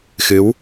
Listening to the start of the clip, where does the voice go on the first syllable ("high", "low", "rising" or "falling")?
rising